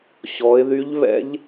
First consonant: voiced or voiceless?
voiceless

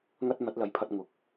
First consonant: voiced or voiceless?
voiced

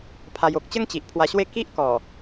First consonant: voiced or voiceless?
voiceless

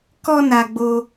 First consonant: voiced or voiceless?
voiceless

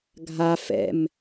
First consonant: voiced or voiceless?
voiced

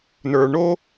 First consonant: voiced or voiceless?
voiced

